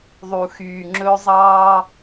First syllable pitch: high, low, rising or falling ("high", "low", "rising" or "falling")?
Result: low